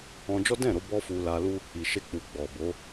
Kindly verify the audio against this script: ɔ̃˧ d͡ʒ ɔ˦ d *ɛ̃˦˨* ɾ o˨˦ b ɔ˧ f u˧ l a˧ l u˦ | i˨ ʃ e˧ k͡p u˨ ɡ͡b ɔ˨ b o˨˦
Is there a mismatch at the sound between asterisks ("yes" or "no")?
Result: no